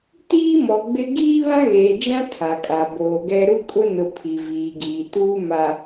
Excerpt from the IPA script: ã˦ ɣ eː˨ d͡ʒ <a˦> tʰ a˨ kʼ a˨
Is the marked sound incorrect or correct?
incorrect